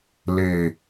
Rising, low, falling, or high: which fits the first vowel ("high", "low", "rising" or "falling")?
low